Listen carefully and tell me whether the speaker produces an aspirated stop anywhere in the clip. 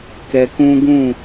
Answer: no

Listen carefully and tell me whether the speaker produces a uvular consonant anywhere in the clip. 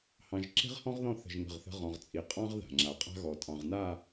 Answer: yes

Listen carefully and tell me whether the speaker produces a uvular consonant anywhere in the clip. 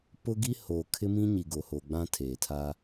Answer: no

